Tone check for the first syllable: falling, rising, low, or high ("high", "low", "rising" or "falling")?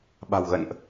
low